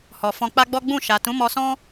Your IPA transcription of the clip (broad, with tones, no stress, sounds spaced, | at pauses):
h ɔ˨ f ɔ̃˧ k͡p a˦ ɡ͡b ɔ˦ ɡ͡b ũ˦˨ ʃ a˨ t ũ˨˦ m ɔ˧ s ɔ̃˦